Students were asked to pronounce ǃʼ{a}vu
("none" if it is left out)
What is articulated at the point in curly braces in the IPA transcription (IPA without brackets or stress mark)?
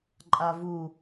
a